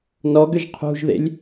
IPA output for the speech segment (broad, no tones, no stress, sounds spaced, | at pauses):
n ɔ ɡ ʏ ʒ qʰ ṳ ʒ ð ḛ lʲ